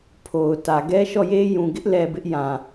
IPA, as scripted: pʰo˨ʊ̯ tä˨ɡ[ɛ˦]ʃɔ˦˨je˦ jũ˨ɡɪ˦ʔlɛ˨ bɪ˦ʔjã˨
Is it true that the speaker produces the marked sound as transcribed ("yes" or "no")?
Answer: yes